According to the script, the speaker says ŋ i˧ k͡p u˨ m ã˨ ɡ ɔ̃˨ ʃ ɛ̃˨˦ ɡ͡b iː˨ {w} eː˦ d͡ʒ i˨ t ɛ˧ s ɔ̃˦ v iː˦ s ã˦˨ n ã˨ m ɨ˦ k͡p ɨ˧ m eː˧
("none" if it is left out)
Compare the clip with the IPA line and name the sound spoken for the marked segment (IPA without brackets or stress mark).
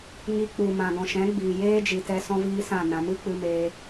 j